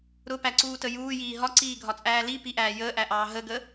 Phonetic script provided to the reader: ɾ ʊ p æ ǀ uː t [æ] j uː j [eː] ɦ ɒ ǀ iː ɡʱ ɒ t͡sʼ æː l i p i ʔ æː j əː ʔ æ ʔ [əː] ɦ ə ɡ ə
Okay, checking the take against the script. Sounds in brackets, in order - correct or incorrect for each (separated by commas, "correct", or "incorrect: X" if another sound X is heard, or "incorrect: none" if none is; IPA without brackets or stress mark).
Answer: incorrect: ə, incorrect: iː, incorrect: ɑː